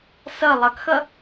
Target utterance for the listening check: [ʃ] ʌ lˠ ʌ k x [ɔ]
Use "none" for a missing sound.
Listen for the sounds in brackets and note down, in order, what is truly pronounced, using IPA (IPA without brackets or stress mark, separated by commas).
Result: s, ʌ